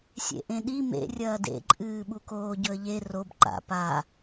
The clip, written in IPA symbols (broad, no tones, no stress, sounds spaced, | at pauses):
sʲ ḛ ʔ ẽ ɗ i m ḛ rʲ ɐː d ḛ ǃʼ ɨː ɓ u k oː ɟ ɵ ə̯ ʎ e r o b ǃ a̰ p a